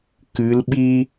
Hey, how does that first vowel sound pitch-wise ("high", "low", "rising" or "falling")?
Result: rising